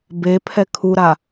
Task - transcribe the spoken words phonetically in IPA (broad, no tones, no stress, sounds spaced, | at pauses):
b e pʰ ɛ kʰ u ɾ a